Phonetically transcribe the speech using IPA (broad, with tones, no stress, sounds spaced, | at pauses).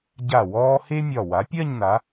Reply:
ɟ a˧˩ w ɔː˧ h e˥ mʲ ɒ˧˩ w a˩˧ pʲ ɜ˥˧ ɲ n a˩˧